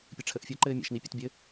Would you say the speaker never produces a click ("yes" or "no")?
no